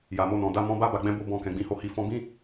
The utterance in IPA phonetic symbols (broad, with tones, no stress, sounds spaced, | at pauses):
j a˨ m o˧ n ɔ̃˨ d a˧ m ɔ̃˧ b a˦ b a˧ ɡ͡b ɛ̃˦ b o˦ b ɔ̃˧ k ɛ̃˨ ɡ͡b ĩ˨˦ h o˦˨ h i˧ f ɔ̃˧ b ĩ˦